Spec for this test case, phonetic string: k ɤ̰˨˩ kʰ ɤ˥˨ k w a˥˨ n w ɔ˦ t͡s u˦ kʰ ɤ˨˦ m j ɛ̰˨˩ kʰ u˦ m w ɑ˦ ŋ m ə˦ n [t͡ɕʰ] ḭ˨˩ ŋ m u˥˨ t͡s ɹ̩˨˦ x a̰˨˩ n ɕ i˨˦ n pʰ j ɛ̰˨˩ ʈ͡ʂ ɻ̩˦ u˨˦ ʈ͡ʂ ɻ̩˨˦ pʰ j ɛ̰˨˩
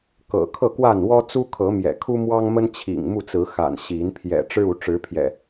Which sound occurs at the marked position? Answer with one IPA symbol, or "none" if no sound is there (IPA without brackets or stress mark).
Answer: t͡ɕʰ